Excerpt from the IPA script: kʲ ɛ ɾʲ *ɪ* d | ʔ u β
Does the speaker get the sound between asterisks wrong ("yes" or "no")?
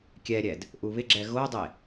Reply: yes